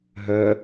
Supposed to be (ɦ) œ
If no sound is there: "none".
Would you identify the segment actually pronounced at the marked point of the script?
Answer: ɦ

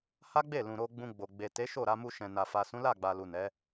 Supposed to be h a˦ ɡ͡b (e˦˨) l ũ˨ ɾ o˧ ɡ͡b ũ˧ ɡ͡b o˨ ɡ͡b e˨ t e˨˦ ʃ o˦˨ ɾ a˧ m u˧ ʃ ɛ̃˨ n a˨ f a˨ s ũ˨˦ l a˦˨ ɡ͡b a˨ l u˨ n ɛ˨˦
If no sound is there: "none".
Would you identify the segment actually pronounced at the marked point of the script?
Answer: e˦˨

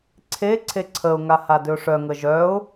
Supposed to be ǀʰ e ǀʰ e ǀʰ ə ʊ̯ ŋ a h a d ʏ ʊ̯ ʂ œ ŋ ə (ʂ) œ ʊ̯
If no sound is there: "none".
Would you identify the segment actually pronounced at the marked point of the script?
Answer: ʒ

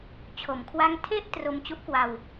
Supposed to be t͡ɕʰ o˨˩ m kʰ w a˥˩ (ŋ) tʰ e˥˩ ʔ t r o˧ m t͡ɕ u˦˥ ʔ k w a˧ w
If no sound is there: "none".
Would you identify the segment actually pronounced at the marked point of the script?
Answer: ŋ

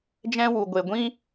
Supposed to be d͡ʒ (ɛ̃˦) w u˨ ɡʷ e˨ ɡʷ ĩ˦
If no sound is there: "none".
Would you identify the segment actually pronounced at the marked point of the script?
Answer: ɛ̃˦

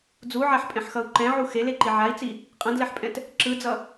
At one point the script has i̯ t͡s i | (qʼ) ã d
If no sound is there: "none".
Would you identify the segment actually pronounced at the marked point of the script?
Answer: qʼ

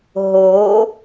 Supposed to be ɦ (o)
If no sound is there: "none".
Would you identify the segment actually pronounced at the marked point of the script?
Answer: o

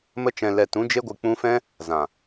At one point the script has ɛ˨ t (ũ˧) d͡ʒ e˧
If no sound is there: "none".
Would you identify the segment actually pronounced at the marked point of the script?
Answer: ũ˧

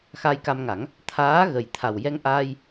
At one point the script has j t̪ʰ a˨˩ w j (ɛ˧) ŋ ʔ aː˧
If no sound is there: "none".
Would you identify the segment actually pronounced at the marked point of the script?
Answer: ɛ˧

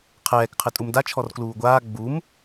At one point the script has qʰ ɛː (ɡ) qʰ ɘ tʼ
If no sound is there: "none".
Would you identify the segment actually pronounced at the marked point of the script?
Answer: k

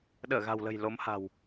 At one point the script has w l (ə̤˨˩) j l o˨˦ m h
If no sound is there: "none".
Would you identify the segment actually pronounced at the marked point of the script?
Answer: ə̤˨˩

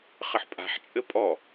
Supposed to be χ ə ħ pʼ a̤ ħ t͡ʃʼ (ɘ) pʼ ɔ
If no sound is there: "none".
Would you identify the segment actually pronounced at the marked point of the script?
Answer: ɘ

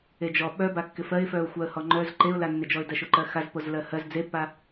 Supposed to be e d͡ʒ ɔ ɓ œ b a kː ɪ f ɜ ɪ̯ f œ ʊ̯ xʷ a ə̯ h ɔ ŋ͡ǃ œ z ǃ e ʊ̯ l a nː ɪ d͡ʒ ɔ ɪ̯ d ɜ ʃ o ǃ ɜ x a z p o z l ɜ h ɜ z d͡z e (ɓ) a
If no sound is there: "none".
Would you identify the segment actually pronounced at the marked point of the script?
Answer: pː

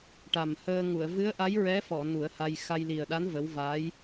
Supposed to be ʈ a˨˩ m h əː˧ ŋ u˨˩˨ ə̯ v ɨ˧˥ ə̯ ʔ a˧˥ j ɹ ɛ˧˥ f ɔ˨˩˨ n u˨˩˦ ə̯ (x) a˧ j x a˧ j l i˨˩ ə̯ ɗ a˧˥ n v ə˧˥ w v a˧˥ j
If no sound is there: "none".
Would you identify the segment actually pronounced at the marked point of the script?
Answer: h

